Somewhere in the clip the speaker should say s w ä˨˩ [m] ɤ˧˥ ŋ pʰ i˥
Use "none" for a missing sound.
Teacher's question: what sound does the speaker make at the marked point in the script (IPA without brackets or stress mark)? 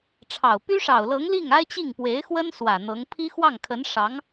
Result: n̪